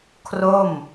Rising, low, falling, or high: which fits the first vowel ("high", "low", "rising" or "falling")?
falling